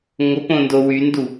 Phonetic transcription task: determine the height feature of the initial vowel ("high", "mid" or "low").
mid